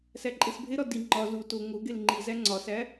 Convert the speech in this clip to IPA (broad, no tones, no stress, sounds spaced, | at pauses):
s æ ǃʼ e s bʱ e ɾ ɒ d i ŋ͡ǃ ɒ z u t o ŋ o ɡ e l ŋ͡ǃ i z æ ŋ͡ǀ ɒ s æ